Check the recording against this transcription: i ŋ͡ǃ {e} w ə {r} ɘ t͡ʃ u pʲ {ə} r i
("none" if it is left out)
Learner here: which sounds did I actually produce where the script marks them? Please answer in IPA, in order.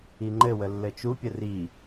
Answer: ɘ, lː, ə

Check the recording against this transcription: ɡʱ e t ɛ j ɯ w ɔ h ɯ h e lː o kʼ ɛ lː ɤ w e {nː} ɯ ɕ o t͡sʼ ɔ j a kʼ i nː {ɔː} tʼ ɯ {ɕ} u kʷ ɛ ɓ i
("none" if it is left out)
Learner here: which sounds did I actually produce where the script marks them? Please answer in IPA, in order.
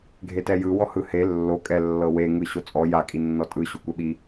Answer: ŋ, ɔ, ɕ

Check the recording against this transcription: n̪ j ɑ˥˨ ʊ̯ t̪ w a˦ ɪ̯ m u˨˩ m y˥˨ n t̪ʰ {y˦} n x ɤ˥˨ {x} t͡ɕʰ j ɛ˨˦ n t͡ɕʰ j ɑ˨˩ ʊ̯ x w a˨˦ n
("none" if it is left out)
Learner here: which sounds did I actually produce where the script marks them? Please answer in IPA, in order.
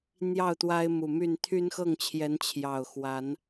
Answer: y˦, ŋ

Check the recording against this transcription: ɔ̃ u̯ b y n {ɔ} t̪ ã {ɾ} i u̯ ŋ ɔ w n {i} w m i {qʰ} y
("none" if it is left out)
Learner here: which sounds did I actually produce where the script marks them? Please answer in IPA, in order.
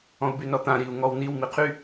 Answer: ɔ, ɾ, i, qʰ

